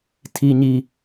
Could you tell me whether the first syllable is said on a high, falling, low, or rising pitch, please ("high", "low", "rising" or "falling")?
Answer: high